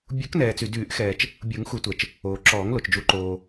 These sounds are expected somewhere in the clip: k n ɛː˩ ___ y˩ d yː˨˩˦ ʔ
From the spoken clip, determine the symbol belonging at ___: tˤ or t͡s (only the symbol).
t͡s